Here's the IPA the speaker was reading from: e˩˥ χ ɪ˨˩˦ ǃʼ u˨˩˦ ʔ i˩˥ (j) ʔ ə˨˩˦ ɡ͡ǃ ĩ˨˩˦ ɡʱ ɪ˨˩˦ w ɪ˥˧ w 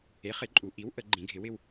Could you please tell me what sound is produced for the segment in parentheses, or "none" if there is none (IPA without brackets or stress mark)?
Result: w